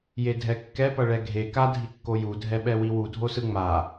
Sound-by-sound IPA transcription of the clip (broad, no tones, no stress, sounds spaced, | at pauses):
j e dʱ ɛ kː ɛ p ʌ ɭ ɛ ɡʱ e k a dʱ i kː o j u dʱ ɛ ɓ ɛ w i w u dʱ o s ɯ ŋ͡m a